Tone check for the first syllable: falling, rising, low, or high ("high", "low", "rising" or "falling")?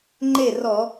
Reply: falling